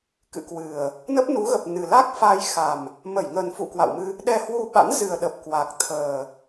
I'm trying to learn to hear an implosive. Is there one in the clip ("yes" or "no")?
yes